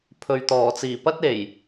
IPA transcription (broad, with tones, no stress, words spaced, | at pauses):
pʰɵ˨ɥt̪ɔː˨˩t͡siː˨˩ pɐ˥t̚e˨˩j